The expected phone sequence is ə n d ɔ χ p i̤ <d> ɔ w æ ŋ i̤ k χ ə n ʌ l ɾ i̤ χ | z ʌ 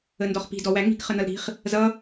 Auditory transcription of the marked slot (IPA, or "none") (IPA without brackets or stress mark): d